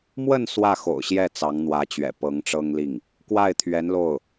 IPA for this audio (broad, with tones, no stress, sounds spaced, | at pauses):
m w ə˥˧ n s w ä˥˩ x o̰˨˩ ʊ̯ ɕ j ɛ˥˩ t͡s ɑ˧˥ ŋ n̪ w ä˧˥ t͡ɕ ɥ ɛ̰˨˩ p ɤ˧˥ ŋ ʈ͡ʂ ɤ˥ ŋ l i˥˩ ŋ | k w a˥˩ ɪ̯ t̪ʰ ɥ ɛ˧˥ n l o˥˩ ʊ̯